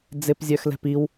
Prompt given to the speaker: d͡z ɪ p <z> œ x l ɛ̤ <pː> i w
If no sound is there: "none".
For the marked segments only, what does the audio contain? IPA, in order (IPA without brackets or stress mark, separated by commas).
zʲ, p